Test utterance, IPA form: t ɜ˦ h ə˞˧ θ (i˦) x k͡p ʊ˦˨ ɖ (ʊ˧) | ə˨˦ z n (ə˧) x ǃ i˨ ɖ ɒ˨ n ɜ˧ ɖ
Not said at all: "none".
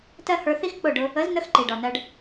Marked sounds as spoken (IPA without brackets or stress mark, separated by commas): i˦, ʊ˧, ə˧